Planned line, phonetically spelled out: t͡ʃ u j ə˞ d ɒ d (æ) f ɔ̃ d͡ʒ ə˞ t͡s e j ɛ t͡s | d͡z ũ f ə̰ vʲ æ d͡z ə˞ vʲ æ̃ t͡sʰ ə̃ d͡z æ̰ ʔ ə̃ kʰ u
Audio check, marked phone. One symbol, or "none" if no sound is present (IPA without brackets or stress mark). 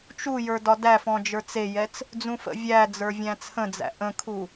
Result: æ